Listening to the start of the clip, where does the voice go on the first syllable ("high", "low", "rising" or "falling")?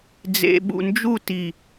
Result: low